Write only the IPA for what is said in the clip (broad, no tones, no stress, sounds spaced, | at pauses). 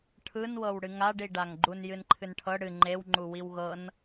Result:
ʈʰ ɯ n w ɤ w ɽ ɨ ŋ a ɖ i ɖ a ŋ ɡ͡ǃ u n j ɨ n ǃʰ ɨ n ʈʰ ɤ ɽ ɨ ŋ͡ǃ e w ŋ͡ǃ u w i w ɣ ɤ n